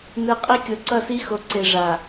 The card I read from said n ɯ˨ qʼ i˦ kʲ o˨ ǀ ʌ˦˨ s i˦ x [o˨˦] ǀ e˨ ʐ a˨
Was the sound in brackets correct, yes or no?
yes